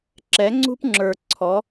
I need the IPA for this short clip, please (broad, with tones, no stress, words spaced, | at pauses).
ǁɛ˨˦ŋ͡ǀṳ˦pŋ͡ǁə˞˨ ǀʰɔ˨˦